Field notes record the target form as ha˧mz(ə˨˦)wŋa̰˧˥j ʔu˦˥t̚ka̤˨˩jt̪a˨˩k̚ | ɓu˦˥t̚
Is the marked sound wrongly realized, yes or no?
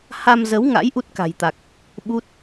no